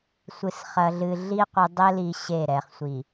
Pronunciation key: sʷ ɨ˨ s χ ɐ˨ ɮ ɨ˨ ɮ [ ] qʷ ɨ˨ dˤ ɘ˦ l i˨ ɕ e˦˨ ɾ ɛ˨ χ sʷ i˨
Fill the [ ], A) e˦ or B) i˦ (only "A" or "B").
B